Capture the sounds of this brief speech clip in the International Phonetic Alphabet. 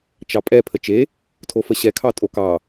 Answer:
t͡ʃɑpʼɛ pʰət͡ʃe | tʰofəɕɛ kʰɑtʼokɑ

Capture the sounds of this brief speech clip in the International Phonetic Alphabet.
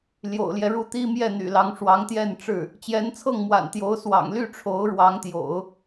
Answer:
ljo̰˨˩ʊ̯ljɛ˦ɻu˥˩ t̪i˥mjɛ˥˩n̪y̰˨˩lɑ˧˥ŋ ʂwɑ˧˥ŋt̪jɛ˥˧nʈ͡ʂɻ̩˥˩ | t͡ɕjɛ˧˥nt͡sʰɤ˥˩ŋmwa̰˨˩n t̪jo˧˥ʊ̯swɑ̰˨˩ŋ ly˥˩ʈ͡ʂʰo˧˥ʊ̯ɻwɑ˧˥ŋt̪jo̰˨˩˦ʊ̯

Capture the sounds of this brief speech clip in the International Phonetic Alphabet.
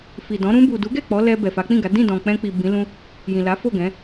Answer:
fi˨dɔ̃˨˦ ɾũ˧bu˨du˨˦ɡɛ˦˨ k͡pɔ˨˦lɛ˧ bɛ˨fa˨˦k͡pĩ˦˨ɡa˨˦ dĩ˦˨dɔ̃˨ k͡pɛ̃˧k͡pi˨ bĩ˨˦lũ˦ | jĩ˨la˨˦fo˦˨ɡɛ̃˨˦

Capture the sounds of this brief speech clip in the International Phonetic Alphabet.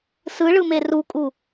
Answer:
sɯɭɯme rukʼu

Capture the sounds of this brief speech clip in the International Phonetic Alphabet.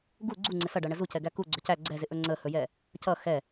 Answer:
ɡu ɡ͡ǀuŋ͡ǀɪ sʌɖʌɳə zucɛɡæ kuɡ͡ǀɵ cæ ɡ͡ǀɛzɪʔɵ ŋ͡ǀəhɵjɛ | cʌ xɛ

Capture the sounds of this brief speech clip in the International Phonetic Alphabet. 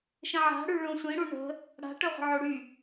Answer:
ʃə̃ʕa̤ ɽyɭõsʷĩ ɽuɳə̤ | ɽa̤ ʈœʁʷə̤ʕoɽy

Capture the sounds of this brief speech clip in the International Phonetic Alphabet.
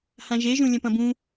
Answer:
hãʒeʒũ lʲɐ̃pɐ̃bũ

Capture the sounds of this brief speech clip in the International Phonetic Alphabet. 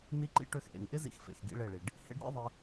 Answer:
ni˦ǃḭ˦ ʈø˧xʔḛ˨ŋʔɪ˦ zḭ˦xfḛ˨x ɡḭ˦ɭe˦˨ɭi˨ɖ | hḛ˦ɖ ɾʲḛ˦ðˤɪ˧

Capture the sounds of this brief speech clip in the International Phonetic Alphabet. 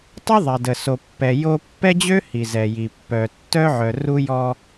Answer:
tˤœ˦ðˤɛ˨də˨so˨ pːɛ˨ jo˦ pːɛ˦d͡ʑø˦ hi˨zɛ˨ji˨ pːœ˨tːœ˦ʕœ˨ ru˦jɔ˦

